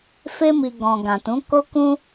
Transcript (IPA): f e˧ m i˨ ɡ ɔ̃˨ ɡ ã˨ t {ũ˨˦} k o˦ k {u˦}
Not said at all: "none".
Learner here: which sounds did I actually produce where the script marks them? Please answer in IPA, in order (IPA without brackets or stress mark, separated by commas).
ũ˨˦, ũ˦